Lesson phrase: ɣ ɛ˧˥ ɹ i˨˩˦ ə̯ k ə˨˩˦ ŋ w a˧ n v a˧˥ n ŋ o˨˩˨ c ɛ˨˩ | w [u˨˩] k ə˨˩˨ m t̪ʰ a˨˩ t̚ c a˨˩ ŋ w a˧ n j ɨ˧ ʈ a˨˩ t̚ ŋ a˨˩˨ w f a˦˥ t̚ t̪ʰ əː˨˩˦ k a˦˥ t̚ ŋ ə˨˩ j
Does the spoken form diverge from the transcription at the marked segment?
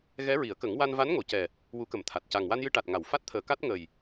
yes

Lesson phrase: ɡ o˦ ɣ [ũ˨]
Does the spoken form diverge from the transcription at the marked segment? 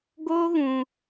no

